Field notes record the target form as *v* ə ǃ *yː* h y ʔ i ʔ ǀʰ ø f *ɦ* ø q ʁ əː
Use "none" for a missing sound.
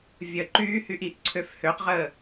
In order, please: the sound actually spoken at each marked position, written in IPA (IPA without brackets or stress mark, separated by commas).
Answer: vʲ, yː, h